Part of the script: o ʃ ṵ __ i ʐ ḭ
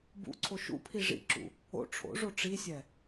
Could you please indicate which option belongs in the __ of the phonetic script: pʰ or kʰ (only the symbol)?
pʰ